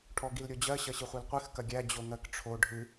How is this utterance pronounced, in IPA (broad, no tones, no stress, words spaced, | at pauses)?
ʈʰɔɡilɾʲod͡ʑɜ ɕɐɕɨχʷilqʷɨx kɐɡʲæ d͡ʑoŋɜkʈ͡ʂʰo ɖʱɨ